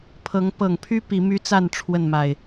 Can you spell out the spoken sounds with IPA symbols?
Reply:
pʰ ɤ˨˦ ŋ p ɤ˨˩ ŋ pʰ y˦ p i˨˦ m y˦ t͡s a˥˨ n ʈ͡ʂʰ w ə˥˨ n m a˨˩ ɪ̯

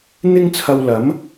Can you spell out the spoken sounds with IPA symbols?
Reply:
n̪ ɪ˥ ŋ t͡sʰ ɐ˧ w l ɐ˨˥ m

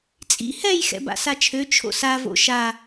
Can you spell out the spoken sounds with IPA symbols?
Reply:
t͡sʼ ḭ h ɛ j x ɛ̰ b a̰ s a t͡ʃʰ ø t͡ʃʰ o̰ s a v o̰ ʃ a

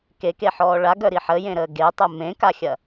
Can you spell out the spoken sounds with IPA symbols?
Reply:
k e k e ħ ɔː ɭ a ɡ œ ɾ i ħ ə j ẽ ɾ əː ɡ e tˤ ə m ẽ k a xʲ ɐ

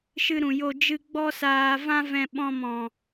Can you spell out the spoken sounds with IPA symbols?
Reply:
ʃ ɨ˧ ɾ ũ˨ j o˧ d͡ʒ ɨ˦ ɡ͡b ɔ˦ s aː˧ v ã˦ v ɛ̃˧ ɓ ɔ̃˧ m ɔ̃˨

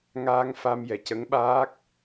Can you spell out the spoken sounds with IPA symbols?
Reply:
ŋ aː˧ ŋ f a˧ m j ɛ˨˩ c ə˧˥ ŋ ɓ aː˦˥ k̚

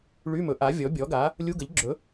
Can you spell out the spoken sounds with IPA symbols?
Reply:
ɭ y˧˥˧ m ɵ˩˥ ʔ a˩˥ vʲ ɔ˩˥ bʲ ɔ˩˥ ɡ a˩˥ | lʲ u˧˥˧ ɡ ə˩˥ ʎ ɡ͡ǁ ɵ˩˥

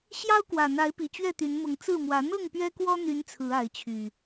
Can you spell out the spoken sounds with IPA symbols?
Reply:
ɕ j ɑ˦ ʊ̯ k w ä˨˩ n̪ a˨˦ ɪ̯ p i˨˩ t͡ɕ ɥ ɛ˥˨ t̪ y˨˦ n m ʊ˨˦ ŋ t͡s ɹ̩˥˨ m w ä˨˦ n̪ ɤ˥˨ ŋ p ɥ ɛ˦ k w ɔ˦ n̪ y˨˦ n t͡sʰ ɹ̩˨˦ a˨˦ ɪ̯ t͡ɕʰ y˨˩

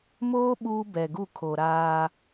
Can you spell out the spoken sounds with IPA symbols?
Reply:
m oː˦ ɓ uː˦ b ɛ˨ ɡ u˦˨ kʰ o˨ ɾ aː˦

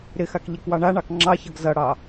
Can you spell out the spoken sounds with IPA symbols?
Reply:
ɾ ɪ x a k ʎ e k w ɑ ɳ a ɳ ɑ k ŋ͡ǁ ɑ ç ʌ ɡ z ʌ ɽ ɑ

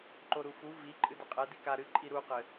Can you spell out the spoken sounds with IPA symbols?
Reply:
ǃ o ɾ u f u v i ǃʼ ɨ d ɘ qʼ ɛ d i k a ɾ ɨ ǃʼ i ɾ u q ɘ

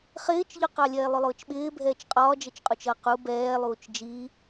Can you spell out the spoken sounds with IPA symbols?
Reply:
χ ɪː t͡ʃ ʎ ʊ q ɑ lʲ ɛː lˠ ʊ lˠ ʊː t͡ʃ ɓ ɪː bʱ ɛː t͡ʃ qʼ ɒː d͡ʒ ə t͡ʃ qʼ u t͡ʃ ʌ q u b ɛː lˠ uː t͡ʃ d͡ʒ i

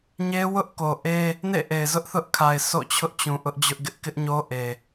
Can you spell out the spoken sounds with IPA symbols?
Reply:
ɲ e˦ w ʊ˦ ʔ k o˨ ʔ e˦ | n ḛ˦˨ ʔ e˨ ɪ̯ z ʊ˦ ʔ θ ʊ˦ ʔ kʰ a˨ ɪ̯ s o̰˦˨ t͡ɕʰ ʊ˦ ʔ t͡ɕ ũ˨ ʔ ʊ˦ ʔ d͡ʑ ʊ˦ ʔ ɡ ɪ˦ ʔ k ɪ˦ ʔ ɲ o˦ ʔ e˨

